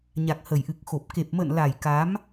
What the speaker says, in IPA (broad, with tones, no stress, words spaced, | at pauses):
ɲa˨˩k̚hə˨˩jʔɨ˨˩k̚xo˨˩p̚ ke˨˩p̚mə̰ː˧˨nla˨˩j ka˨˦m